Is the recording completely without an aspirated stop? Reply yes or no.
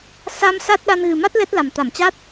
yes